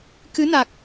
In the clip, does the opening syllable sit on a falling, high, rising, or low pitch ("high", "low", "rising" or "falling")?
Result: rising